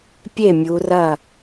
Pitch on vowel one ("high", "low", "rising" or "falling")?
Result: falling